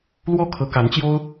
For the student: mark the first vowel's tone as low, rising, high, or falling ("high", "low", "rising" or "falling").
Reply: falling